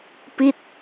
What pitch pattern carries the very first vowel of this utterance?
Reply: falling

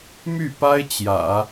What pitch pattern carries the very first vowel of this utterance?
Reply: falling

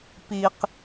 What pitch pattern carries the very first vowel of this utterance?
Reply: low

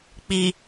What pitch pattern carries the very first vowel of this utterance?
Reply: low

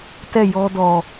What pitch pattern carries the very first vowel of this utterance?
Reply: falling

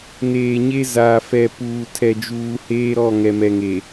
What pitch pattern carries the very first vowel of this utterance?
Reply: low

